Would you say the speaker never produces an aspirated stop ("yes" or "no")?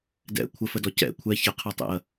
no